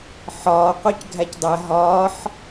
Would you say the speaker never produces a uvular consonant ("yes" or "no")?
no